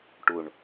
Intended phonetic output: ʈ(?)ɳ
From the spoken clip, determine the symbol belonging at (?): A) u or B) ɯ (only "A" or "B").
A